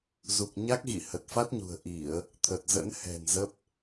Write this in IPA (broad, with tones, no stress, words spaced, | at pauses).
zu˨˩k̚ɲa˦˥k̚ɣḭ˧˨ hə˨˩t̚fa˦˥t̚ɲṳ˨˩ə̯ʔi˧˩˨ə̯ | t̪ʰə˨˩t̚zə̰˧˥n hɛ̤˨˩n zə˦˥p̚